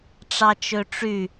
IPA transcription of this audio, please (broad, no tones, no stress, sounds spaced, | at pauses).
ʈ͡ʂ ɑ t͡ʃ ø ʈ͡ʂ y